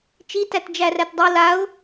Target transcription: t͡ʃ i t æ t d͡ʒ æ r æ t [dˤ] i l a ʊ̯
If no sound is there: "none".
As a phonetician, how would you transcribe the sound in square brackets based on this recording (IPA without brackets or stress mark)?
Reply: dˤ